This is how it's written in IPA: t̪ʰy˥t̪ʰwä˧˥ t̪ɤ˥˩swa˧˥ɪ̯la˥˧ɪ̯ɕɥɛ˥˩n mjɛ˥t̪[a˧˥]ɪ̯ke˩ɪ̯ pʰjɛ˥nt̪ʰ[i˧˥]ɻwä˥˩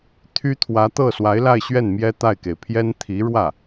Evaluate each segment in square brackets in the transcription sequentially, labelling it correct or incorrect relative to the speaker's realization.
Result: incorrect, correct

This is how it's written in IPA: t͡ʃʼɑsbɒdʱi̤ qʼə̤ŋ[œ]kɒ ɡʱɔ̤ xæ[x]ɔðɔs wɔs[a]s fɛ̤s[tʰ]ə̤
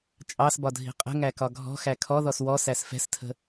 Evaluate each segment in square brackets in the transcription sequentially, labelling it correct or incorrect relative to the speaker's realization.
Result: incorrect, incorrect, incorrect, correct

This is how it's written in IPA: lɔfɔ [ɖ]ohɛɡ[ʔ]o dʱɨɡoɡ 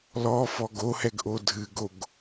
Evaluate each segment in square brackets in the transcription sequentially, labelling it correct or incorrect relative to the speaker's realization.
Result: incorrect, correct

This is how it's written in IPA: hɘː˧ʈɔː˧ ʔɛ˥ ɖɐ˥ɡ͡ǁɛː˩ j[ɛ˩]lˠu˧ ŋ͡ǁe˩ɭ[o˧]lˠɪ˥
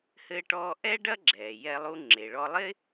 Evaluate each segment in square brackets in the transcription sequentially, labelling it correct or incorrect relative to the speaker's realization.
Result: incorrect, incorrect

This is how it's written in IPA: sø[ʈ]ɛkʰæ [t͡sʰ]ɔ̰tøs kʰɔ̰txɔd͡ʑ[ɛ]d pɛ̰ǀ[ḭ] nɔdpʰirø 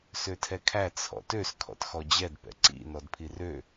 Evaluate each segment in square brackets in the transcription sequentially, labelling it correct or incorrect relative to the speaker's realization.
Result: incorrect, correct, correct, correct

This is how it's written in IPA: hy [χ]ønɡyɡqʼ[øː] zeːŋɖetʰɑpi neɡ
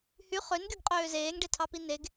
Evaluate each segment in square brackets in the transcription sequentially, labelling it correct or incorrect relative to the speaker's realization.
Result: correct, correct

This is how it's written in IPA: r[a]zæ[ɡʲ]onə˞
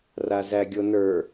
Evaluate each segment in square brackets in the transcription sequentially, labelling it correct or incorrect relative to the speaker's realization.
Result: correct, correct

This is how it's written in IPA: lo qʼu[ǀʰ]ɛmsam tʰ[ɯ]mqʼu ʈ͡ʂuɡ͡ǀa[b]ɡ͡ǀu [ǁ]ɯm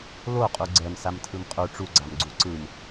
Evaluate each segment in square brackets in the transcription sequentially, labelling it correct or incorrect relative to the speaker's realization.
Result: incorrect, correct, incorrect, incorrect

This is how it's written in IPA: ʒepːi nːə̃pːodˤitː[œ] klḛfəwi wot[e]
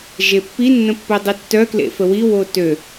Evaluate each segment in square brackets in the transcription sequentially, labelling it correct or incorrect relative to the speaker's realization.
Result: correct, incorrect

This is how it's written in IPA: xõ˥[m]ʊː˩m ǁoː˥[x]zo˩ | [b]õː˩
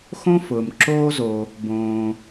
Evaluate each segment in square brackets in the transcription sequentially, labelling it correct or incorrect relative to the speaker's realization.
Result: incorrect, incorrect, correct

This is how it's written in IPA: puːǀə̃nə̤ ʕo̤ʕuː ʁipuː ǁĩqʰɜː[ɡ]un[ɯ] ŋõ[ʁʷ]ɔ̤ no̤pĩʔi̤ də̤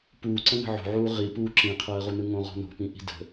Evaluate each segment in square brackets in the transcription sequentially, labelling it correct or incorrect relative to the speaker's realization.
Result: incorrect, correct, incorrect

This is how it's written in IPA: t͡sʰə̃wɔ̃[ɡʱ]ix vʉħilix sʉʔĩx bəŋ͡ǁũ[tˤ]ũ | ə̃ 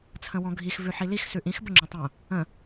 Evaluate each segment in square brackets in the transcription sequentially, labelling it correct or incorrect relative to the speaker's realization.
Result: correct, correct

